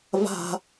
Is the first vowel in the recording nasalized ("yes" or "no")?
no